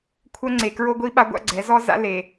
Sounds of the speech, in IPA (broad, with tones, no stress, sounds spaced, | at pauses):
kʷʰ œ˦ ŋ͡ǀ e˨ k ɹ o˦ ɡʷ i˦ ɓ a˦ ɡʷ a̰˦ ɡ͡ǀ ɛ˨˦ z ɔ˦ z a̰˦ l e˨